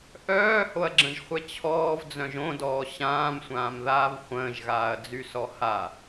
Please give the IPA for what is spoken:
ʔ œː h o ɐ̯ ɡ͡ǁ ə̃ ʒ χʷ ɛ t͡ɕʰ ɔː v d͡z œ̃ ʒ õ d ɔː ɕ ãː m sʷ ãː m ð aː v χʷ ə̃ː ʒ ɣ aː ɐ̯ d͡z y s ɔ h a

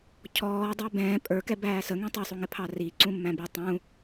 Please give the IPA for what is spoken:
cʰ ɔː dˤ ə˞ b ɛ̃ː pʼ ə˞ k ɛ b æː s ə ŋ ĩ tˤ ɛ sˤ u ŋ ɪ pʰ ɑ r i ǀ ũ mː æ̃ b i tˤ ũ

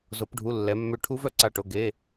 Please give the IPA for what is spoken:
z o˩˧ p ɖʱ u˩˧˩ lː ɛ˩˧ mː ø˧˩ ʈʰ u˦˥ v œ˧˩ ǀ a˧˩ ʈ o˩˧˩ ɡ e˩˧˩

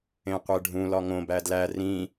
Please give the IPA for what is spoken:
ẽ qʷ e ɖʱ ũ l ɒ ŋ õ b æ d l æ r ĩ

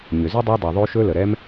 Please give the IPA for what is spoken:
ɲ ʏ˩ z ʏ˥ dˤ a˦ dˤ ə˩ ðˤ o˦ ʃ ɵ˦ l ə˩ ɾ ɛ˥ m

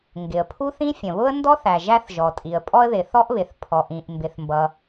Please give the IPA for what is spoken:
ŋ ɡ ɪ˩ ə̯ pʰ u˥ θ ĩ˥ fʲ ə̃˩ β ʊ˥ ə̯ n d ɔ˥ θ æ˩ ʒ æ˥ θ ʒ ɔ˩ tʼ i˩ ə̯ pʼ ɔ˥ ə̯ ð ɪ˩ θ ɔ˥ ʔ β ɪ˩ θ pʰ ɔ˩ ʔ ĩ˩ ʔ m b ɪ˩ θ m b ʌ˩

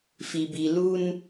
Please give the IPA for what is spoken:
f i˨ b i˨ l u˦ n

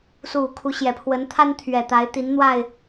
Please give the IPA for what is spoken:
s u˥˨ kʰ u˨˦ ɕ j ɛ˨˩ pʰ w ə˨˦ n t̪ʰ a˦ n t̪ʰ ɥ ɛ˨˩ t̪ a˨˦ ɪ̯ t̪ i˨˦ n n̪ w a˥˨ ɪ̯

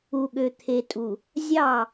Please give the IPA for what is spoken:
u˨ ɠ ø˨ t̪ʰ e˨ tʼ u˨ | zʲ ɑ˦˨

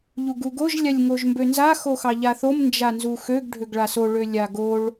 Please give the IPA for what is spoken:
ʎ u ɡ u ɡ o ʒ lʲ a lʲ ŋ o ʒ m b ø n z a x o x ɑ ʎ a θ o m n d͡ʒ a n z u x ø ɡ ɖʱ ø ɡ ɭ a s o ɭ ø lʲ a ɡ o ɭ

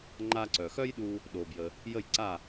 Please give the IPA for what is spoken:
ŋ͡ǃ a˧ ǀ œ˩ x œ˥ j ɗ u˧ | ɗ o˩ b j ə˩ | j ə˥˩ j ǀ a˥˩

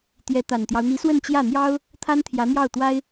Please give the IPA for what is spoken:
t̪ j ɛ˧˥ t̪ a˨˩ n t̪ j ɑ˦ ʊ̯ n̪ i˧˥ s w ə˥˧ n t͡ɕ j ä˥˩ n̪ j ɑ˥ ʊ̯ | t̪ʰ a˥ n t̪ʰ j ä˧˥ n̪ j ɑ˥˩ ʊ̯ t̪ w a˥ ɪ̯

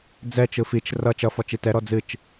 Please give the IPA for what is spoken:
d͡z ɛ t͡ʃ ɯ f i t͡ʃ r ʌ t͡ʃ ʌ f ɔ t͡ʃ i t ɛ ɾ ɔ d͡z ɨ t͡ʃ

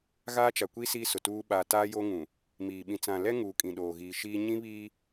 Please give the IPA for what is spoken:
ɣ aː˦ t͡ʃ a˨ kʷ i˦ s iː˦ s ʊ˨ t uː˦ ɓ aː˨ t aː˦ j oː˦ ŋ ũ˨ | m iː˨ ɓ ĩ˨ t͡s ã˨ l ɛ˦ ŋ uː˨ kʼ ĩ˨ ɗ oː˨ ɣ iː˨ ʃ iː˦ ɲ ĩ˦ β iː˦

